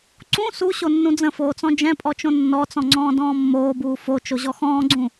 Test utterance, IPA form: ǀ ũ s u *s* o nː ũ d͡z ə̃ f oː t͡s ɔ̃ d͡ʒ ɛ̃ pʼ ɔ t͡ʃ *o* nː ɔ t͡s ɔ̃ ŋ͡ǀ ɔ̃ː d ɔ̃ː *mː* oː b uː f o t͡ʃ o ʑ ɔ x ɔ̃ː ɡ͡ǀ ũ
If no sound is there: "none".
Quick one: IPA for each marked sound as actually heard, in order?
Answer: ɕ, õ, mː

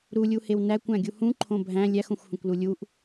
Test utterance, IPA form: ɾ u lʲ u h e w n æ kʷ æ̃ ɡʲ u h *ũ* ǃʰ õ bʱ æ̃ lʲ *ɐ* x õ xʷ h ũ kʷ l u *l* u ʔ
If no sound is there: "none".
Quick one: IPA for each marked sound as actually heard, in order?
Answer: ũ, æ, lʲ

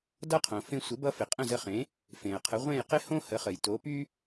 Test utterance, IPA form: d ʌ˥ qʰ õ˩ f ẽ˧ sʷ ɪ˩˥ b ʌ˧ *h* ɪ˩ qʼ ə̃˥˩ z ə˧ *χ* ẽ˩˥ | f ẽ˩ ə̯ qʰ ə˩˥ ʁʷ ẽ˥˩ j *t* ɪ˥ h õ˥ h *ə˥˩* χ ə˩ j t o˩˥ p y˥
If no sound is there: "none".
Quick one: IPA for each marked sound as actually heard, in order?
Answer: f, χ, q, ə˩˥

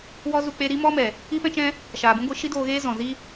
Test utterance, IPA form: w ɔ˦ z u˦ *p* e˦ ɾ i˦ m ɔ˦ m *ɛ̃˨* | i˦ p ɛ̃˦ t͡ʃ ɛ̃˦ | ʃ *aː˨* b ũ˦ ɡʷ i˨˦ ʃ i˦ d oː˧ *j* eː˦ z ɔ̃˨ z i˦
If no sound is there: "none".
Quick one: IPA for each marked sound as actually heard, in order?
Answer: k͡p, ɛ˨, aː˨, ɣ

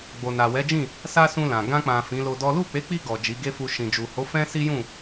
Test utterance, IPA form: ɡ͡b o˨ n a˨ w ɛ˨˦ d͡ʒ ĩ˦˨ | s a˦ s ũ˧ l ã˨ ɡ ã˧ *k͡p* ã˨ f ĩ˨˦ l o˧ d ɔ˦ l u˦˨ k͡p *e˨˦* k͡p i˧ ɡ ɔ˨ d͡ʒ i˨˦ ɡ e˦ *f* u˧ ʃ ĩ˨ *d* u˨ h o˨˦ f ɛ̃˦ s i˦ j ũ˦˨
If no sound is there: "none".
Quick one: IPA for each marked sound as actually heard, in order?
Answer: k͡p, e˨˦, f, d͡ʒ

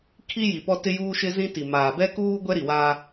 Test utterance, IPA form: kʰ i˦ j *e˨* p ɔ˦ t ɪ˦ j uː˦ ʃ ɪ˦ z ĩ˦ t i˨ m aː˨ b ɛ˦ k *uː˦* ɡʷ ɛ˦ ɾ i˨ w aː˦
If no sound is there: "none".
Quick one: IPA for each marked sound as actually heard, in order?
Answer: i˨, uː˦

